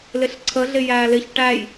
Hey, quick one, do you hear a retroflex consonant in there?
yes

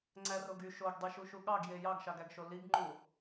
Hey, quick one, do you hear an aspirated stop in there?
no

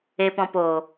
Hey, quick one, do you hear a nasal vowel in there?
yes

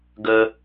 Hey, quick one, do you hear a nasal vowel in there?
no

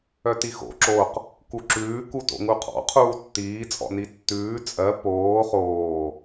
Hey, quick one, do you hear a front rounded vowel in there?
yes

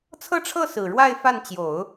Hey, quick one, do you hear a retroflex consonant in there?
yes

